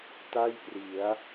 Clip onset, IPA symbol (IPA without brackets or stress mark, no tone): t